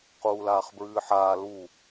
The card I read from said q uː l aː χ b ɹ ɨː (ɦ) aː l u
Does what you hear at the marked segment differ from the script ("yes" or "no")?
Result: yes